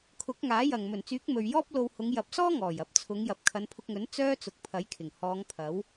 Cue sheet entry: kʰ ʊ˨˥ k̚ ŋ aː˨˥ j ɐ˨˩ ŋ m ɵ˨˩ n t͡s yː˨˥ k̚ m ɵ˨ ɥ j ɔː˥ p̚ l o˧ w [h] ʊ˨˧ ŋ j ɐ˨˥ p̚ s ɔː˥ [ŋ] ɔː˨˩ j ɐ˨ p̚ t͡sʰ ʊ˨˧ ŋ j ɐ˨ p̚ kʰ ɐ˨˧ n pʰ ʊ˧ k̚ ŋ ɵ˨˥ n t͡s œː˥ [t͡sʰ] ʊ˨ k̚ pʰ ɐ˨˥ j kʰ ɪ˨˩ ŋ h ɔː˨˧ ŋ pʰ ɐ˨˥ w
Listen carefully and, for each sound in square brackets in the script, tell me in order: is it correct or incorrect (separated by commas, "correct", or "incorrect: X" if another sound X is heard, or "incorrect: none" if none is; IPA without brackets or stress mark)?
correct, correct, incorrect: t͡s